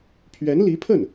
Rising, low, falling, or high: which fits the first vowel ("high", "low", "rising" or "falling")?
rising